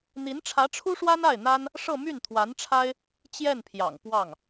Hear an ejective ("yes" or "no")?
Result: no